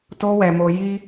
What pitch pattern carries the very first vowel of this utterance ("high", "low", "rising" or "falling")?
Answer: high